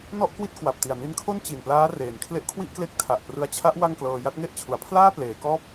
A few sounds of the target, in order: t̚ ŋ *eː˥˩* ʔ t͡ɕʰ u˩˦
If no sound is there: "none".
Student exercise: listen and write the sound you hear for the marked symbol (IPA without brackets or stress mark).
e˥˩